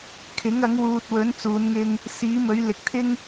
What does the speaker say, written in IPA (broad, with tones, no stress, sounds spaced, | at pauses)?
kʰ ɪ˨˥ ŋ ɐ˨˥ ŋ w uː˨ t̚ w ɵ˨˥ n t͡s uː˨˧ n ŋ ɪ˧ ŋ | s iː˨˥ m ɵ˨˥ ɥ l ɪ˨˥ k̚ t̪ʰ ɪ˥ ŋ